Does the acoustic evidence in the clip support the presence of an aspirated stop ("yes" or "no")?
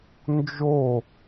no